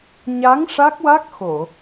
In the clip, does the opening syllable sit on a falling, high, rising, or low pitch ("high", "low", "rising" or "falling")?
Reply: rising